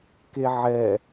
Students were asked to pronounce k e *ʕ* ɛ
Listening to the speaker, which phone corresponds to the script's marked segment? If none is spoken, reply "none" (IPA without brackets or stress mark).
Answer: ʕ